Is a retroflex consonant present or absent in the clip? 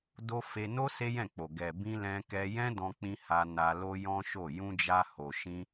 absent